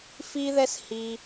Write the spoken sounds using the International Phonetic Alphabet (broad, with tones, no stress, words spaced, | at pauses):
fi˦ðɛ˦s hi˧